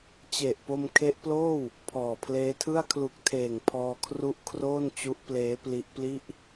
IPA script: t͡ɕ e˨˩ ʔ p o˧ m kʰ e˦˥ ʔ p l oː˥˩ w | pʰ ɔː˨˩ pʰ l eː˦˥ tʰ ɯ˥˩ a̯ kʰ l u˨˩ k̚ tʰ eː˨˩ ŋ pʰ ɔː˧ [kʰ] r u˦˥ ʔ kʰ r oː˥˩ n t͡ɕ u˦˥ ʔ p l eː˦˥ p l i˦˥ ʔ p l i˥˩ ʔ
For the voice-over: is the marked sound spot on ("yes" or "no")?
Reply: yes